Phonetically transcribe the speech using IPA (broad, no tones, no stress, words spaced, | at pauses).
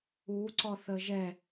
uǀɔθə ʒɛ